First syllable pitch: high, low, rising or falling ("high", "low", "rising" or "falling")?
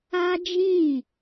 high